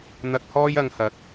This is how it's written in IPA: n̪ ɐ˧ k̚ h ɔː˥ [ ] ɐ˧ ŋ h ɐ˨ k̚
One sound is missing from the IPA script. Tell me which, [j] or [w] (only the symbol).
j